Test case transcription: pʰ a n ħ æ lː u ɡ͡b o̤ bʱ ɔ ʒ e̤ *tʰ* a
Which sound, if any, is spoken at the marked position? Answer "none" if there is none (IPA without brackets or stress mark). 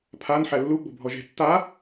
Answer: tː